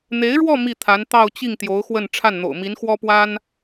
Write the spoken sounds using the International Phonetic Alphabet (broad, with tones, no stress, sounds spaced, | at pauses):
n̪ e˧˥ ɪ̯ ɻ w ɔ˥˧ m i˥˩ t̪ʰ a˧˥ n t̪ ɑ˥˧ ʊ̯ t͡ɕ i˥˩ ŋ t̪ j o˧˥ ʊ̯ x w ə˥˧ n ʈ͡ʂʰ a˥˩ n n̪ o̰˨˩ ʊ̯ m i˧˥ n x w ɔ˥ p w a˥ n